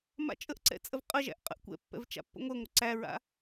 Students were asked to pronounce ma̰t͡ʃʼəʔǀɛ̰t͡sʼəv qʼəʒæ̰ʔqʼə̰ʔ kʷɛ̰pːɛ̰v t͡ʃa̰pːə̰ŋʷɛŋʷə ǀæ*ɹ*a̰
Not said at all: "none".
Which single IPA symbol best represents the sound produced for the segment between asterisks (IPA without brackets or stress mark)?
ɹ